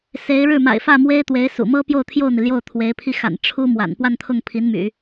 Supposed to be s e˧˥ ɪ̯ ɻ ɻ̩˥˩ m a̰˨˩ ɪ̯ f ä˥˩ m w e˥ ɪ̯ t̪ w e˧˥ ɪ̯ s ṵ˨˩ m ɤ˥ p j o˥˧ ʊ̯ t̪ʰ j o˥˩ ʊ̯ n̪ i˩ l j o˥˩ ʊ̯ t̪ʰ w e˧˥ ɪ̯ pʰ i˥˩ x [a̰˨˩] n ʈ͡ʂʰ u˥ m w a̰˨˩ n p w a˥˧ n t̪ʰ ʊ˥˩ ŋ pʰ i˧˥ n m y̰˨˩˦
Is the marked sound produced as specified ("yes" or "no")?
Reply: yes